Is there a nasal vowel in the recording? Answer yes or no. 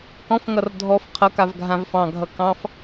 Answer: yes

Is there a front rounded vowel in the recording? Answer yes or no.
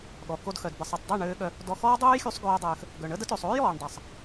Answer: yes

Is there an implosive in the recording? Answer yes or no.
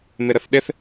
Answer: yes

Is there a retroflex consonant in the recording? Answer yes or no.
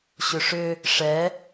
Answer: yes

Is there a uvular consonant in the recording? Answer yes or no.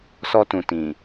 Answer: no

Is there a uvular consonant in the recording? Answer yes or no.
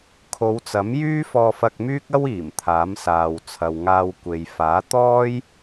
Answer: no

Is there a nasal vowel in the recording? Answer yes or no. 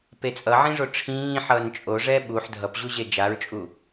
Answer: yes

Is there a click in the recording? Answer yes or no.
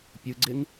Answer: yes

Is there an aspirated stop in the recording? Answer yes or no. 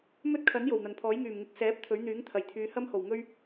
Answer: yes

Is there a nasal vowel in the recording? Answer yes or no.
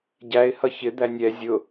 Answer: no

